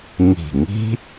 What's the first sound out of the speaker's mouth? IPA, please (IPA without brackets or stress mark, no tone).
ŋ